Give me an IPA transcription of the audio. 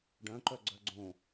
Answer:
ɖ œ̃ ǃ œ ɡ͡ǀ œ ɡ͡ǀ õ

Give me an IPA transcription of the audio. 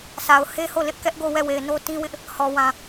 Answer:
sʰ a˨ ʊ̯ h e˦ h o˦˨ l ɪ˦ ʔ k ɛ˦ ʔ ɡ o˦˨ w ɛ˦˨ w e˨ ɪ̯ n o˦ t ĩ˦ w ɪ˦ ʔ | h ɔ˨ w ã˨

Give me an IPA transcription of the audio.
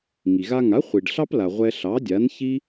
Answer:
ŋ i˩ ɣ a˧ ŋ a˩˥ χʷ i˩ ɖ ɬ ɑ˥ p l a˩ ʁʷ ɛ˧ ɬ ɑ˩˥ dʲ a˩˥ n ç i˥

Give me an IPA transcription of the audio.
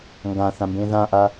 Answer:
ŋ ɡ ã θ ã m b ẽ ð ã ʔ a

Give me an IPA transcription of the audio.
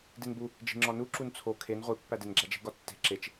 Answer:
d i n b u | d͡ʒ i̤ ŋ͡ǁ ɒ n u ǁ u n t͡sʰ o kʰ e n ʁʷ i pː æ d e n ɡ͡ǁ æ d͡ʒ i̤ ɡ ɒ tː e̤ ǁ e t͡ʃ

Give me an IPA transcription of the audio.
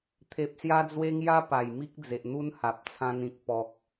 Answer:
t̪ʰ e˨ p̚ s j a˧ d͡z w e˧ ŋ j a˦ p a˨˩ j m i˦ k̚ d͡z e˨ ʔ n̪ u˦ n h a˨ p̚ t͡sʰ ã˧ n ĩ˨ k̚ p ɔ˨ k̚

